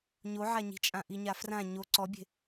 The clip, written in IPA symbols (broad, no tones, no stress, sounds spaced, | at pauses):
ɲ o ʕ a ɲ i̤ t͡ʃʼ ã ʔ i ɲ a f r ã ɲ o ǀ ɔ bʲ e̤